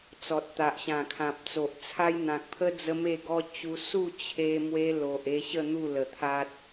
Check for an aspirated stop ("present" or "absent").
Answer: present